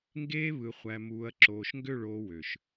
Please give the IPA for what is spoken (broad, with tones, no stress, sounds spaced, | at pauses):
ŋ ɡ eː˦ β ɯ˨ χʷ æ˨ m uː˨ ɐ̯ ǁ oː˨ ʃ ŋ ɡ ø˦˨ ɭ oː˦ w ø˨ ʃ